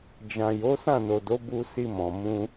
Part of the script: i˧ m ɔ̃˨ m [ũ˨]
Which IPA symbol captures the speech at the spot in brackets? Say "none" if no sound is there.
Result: ũ˧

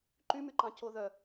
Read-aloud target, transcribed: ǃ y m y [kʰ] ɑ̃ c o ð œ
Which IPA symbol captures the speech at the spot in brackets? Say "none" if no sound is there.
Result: ǃ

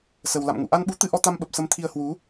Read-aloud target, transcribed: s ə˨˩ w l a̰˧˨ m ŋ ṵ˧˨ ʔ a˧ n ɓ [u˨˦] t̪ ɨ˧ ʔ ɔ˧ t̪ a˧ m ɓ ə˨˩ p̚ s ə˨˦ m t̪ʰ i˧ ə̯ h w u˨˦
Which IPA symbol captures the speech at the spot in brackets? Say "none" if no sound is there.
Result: u˨˦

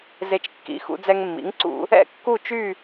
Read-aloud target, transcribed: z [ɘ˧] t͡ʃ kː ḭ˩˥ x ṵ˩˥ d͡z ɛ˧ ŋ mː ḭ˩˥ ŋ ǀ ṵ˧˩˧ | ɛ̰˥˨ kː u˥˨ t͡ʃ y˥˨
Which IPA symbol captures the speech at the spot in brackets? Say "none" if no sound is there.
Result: e˧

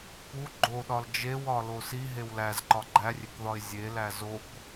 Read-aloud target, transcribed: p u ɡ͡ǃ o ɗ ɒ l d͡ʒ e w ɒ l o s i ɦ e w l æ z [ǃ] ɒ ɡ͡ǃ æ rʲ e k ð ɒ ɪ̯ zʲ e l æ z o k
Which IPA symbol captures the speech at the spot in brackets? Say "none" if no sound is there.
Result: ǃ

